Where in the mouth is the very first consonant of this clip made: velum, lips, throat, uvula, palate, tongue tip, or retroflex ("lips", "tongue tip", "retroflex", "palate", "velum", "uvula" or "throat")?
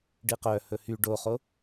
retroflex